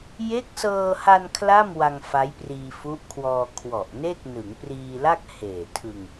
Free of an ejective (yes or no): yes